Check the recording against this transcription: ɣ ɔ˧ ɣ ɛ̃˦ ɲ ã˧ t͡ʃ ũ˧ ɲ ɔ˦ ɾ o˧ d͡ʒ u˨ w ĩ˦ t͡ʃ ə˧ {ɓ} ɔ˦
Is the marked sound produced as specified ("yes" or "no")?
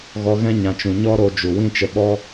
yes